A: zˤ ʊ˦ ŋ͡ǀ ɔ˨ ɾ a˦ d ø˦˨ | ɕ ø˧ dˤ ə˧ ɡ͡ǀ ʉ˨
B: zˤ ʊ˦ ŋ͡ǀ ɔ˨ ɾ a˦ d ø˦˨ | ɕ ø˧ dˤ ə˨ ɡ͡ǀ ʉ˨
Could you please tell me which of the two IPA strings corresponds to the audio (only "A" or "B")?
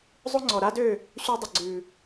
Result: B